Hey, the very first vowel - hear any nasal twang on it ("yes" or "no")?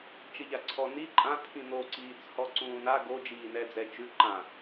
no